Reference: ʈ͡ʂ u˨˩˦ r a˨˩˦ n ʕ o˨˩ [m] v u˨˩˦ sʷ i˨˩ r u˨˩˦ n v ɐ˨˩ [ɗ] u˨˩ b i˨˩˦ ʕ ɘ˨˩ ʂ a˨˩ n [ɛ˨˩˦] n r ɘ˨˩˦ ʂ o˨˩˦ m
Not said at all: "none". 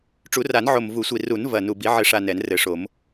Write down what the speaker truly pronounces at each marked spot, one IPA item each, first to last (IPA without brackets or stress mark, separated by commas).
m, n, ɛ˨˩˦